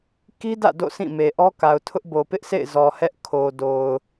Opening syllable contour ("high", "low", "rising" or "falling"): high